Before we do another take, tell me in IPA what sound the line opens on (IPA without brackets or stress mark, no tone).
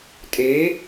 tʼ